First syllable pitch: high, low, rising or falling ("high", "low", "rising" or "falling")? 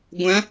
rising